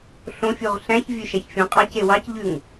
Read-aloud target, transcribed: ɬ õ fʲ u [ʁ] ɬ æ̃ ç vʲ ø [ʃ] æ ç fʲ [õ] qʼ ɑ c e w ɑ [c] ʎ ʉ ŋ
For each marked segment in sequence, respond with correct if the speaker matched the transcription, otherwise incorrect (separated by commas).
correct, correct, correct, correct